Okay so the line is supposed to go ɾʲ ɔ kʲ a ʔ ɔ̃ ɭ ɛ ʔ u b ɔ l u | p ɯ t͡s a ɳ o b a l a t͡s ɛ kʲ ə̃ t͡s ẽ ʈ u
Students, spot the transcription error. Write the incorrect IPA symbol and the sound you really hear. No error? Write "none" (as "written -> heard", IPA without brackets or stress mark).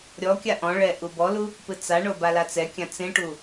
ə̃ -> ã